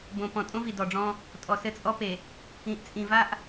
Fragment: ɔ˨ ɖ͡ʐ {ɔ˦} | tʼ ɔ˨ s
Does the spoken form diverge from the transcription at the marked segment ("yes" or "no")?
yes